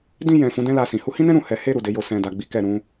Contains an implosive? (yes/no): no